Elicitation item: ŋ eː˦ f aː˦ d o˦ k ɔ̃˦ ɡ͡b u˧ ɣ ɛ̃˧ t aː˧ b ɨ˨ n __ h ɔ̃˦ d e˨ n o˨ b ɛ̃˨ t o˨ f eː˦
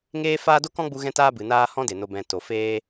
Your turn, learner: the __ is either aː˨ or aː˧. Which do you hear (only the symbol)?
aː˧